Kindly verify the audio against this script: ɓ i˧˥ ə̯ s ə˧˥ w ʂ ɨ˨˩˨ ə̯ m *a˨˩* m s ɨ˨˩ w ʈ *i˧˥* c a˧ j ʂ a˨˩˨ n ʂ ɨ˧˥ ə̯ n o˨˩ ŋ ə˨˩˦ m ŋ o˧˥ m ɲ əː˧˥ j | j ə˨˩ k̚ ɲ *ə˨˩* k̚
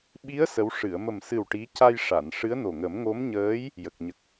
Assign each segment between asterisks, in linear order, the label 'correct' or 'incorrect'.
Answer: incorrect: ə˨˩, correct, correct

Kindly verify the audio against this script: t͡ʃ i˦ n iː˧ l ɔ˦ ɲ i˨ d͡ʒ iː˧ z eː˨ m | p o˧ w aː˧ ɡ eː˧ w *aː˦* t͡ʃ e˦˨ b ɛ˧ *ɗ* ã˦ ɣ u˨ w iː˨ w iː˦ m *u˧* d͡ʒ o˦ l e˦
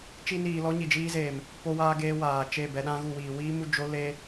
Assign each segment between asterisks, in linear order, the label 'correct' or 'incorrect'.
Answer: incorrect: aː˨, correct, correct

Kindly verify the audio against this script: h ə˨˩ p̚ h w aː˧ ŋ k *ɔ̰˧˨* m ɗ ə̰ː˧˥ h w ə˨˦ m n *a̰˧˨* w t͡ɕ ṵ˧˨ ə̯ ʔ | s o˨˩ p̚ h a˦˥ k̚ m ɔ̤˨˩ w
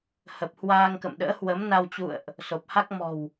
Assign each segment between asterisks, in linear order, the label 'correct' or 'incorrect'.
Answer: incorrect: ə̰˧˨, incorrect: a˧

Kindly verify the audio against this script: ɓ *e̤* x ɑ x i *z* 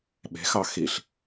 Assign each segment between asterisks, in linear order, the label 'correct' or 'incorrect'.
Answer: correct, incorrect: ɬ

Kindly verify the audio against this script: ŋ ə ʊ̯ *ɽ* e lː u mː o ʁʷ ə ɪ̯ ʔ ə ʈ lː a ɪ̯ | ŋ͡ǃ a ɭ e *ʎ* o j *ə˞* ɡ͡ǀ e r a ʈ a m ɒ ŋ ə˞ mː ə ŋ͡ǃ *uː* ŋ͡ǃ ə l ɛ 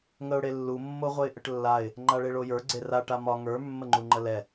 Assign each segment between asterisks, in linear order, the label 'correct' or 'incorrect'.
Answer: correct, incorrect: ɭ, correct, incorrect: u

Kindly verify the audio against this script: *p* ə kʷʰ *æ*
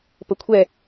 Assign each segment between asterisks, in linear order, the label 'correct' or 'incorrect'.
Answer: correct, incorrect: ɛ

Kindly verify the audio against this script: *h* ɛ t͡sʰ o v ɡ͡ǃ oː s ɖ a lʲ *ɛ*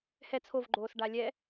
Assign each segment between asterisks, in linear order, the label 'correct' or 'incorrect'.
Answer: correct, correct

